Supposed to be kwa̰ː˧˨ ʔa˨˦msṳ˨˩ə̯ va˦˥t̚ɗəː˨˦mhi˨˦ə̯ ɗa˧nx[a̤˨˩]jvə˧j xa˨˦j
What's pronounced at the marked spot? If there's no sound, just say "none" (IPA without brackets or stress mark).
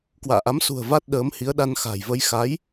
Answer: a̤˨˩